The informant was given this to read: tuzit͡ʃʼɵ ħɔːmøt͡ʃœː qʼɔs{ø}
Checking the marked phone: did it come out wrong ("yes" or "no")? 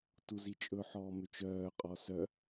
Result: yes